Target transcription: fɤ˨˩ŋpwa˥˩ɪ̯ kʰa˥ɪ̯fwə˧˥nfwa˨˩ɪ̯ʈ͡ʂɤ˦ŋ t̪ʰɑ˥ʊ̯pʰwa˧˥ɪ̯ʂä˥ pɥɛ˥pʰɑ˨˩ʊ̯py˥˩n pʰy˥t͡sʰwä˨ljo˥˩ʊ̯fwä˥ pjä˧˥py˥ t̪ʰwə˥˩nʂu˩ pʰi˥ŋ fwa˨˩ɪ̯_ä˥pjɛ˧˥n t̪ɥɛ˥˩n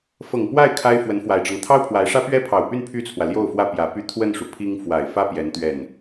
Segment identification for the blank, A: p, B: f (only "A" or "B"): B